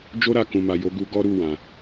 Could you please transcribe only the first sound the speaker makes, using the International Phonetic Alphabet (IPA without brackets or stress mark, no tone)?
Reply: d͡ʒ